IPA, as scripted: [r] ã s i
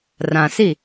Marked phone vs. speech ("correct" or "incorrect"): correct